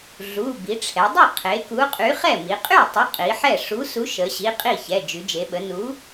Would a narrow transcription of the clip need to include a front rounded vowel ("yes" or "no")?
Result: yes